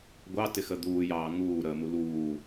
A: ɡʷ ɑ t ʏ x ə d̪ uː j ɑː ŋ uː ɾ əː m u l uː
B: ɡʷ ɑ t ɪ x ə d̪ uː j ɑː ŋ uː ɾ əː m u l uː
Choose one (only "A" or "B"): B